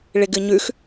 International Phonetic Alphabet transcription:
ɭ ɪ ɡ ɨ ɲ ʉ x

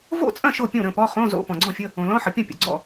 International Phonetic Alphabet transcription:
v o̰˥˩ t͡sʼ ɐ̃˥˩ ʃ o˥˩ pʲ õ˥˩ ɾ ə̃˥˩ p ɔ˧˥˧ χ õ˧˥˧ z o̰˧˥˧ p ɔ̃˩ ɡ͡ǀ ɔ̃˥˩ fʲ ə˧˥˧ | õ˩ l ɔ̃˧˥˧ ħ ə˩ pʲ ɐ̃˥˩ pʲ ə̰˩ ɡ͡ǀ ɔ̰˥˩

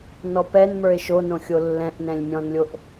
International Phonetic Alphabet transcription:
n ɔ p ɛ n m ə˞ e̯ ʃ o n õ xʲ o lː ɛ̃ ʔ n ɛ̃ lʲ mʲ ɔ̃ n lʲ o ʔ

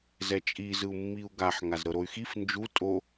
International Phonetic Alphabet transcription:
z ɛ t͡ʃʼ i z ɯ u̯ mː i u̯ ɡ a ħ ŋ a z ɾ ɤ ɾ o y̯ x i f n d͡ʒ u tʼ o

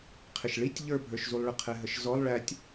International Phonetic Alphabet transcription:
qʰ ɪ ʃ ɭ i tʲ ʎ ə˞ bʱ ə˞ ʃ z u lˠ ɭ ə qʰ ɛ ɦ ə ʃ z ɔ lˠ ɭ æ tʲ

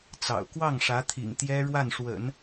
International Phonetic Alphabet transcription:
t͡s ɑ̰˨˩ ʊ̯ k w ɑ˥˩ ŋ ʂ ä˧˥ t̪ʰ ḭ˨˩ ŋ t̪ j ɛ˥ ɻ w a˥˩ n ʂ w ə̰˨˩˦ n

